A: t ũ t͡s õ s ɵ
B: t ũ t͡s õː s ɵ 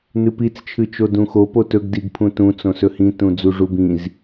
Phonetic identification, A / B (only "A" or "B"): A